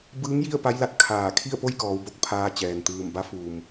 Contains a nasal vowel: no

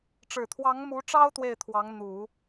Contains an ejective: no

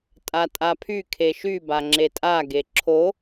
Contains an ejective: yes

